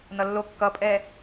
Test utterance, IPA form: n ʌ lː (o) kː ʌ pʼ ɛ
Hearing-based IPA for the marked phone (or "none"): o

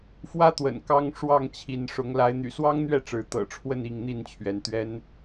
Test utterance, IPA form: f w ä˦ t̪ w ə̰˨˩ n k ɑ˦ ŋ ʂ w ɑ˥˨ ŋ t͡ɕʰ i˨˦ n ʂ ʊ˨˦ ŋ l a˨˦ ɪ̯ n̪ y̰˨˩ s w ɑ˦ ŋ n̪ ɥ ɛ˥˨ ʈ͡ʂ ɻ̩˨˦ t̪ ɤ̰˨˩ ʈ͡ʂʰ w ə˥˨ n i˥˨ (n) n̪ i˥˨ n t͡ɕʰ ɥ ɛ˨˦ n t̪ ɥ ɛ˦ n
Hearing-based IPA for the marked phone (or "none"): ŋ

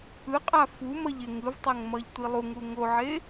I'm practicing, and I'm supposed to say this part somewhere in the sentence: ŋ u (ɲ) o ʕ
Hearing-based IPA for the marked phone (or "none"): ŋ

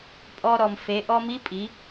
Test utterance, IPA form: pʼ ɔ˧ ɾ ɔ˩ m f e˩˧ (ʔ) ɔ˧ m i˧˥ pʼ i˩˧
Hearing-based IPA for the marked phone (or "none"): ʔ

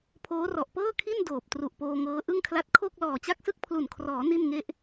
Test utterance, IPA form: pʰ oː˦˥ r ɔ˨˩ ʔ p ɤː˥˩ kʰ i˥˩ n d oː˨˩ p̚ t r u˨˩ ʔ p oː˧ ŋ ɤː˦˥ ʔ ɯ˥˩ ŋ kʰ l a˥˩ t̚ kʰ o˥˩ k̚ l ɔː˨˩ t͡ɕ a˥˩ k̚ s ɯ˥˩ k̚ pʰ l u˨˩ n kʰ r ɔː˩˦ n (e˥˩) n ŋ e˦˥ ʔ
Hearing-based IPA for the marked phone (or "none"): i˥˩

